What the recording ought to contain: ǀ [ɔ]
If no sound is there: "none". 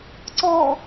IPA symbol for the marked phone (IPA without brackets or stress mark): ɔ